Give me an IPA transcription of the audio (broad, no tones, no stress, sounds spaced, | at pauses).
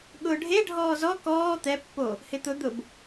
ɠ ʊː ɖʱ e ɖʱ ɔː z ɔ k ɔː t̪ ɛ pː o | h ɪ t̪ ʊ d̪ ʊ b